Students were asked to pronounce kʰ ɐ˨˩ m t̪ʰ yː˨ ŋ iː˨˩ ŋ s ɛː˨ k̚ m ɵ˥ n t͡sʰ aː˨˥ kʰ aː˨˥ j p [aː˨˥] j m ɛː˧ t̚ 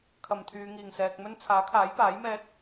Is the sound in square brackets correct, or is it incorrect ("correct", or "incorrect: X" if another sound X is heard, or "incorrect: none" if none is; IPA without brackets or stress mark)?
correct